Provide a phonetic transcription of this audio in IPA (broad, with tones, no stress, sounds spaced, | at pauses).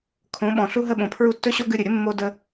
kʰ õ˨˦ ɓ ɔ̃˨ ɬ u˧ ɦ ə˧ ɓ õ˨ pʰ ɹ u˧ tː ɵ˦ ɕ o˦ ɡ ɨ˧ ɾʲ ɨ˨ ɾʲ ə˦ mː o˧ d ə˦